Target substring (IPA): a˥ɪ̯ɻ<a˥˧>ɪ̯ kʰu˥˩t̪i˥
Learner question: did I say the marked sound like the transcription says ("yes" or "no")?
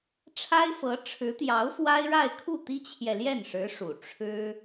yes